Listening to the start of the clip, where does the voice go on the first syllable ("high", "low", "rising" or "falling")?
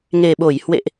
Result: low